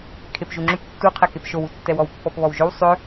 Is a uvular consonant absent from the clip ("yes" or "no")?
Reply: no